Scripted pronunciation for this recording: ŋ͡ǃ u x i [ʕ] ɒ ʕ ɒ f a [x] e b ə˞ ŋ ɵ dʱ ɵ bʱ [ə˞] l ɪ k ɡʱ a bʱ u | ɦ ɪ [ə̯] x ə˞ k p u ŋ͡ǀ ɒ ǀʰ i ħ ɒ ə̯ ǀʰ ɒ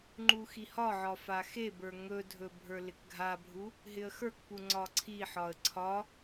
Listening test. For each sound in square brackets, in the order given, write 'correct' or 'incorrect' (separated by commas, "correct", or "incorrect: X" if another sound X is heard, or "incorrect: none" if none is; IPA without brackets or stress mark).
incorrect: h, correct, correct, correct